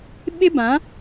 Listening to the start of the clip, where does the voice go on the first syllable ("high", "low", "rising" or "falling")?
high